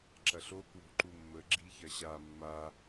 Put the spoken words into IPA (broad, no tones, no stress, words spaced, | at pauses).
ǁɐɬo kwo̤ǃumːə ɡ͡ǁiçɐɕa mːa